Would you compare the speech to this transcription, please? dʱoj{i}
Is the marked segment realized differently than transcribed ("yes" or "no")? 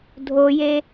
yes